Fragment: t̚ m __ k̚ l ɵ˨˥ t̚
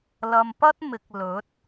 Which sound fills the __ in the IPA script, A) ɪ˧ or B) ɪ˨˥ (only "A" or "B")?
B